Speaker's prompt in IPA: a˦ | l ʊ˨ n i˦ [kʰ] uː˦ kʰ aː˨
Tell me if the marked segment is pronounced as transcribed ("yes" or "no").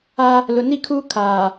yes